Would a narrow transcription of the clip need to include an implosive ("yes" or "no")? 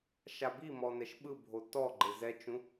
yes